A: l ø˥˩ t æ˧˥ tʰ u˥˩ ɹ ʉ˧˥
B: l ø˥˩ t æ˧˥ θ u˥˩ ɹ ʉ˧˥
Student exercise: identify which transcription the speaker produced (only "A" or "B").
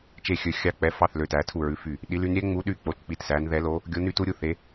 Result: A